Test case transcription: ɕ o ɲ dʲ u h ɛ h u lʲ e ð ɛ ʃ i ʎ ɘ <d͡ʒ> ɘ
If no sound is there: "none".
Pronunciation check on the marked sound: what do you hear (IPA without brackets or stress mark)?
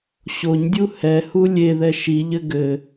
ɡ